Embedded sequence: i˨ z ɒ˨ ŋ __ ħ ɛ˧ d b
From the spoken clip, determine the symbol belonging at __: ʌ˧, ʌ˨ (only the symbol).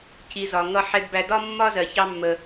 ʌ˧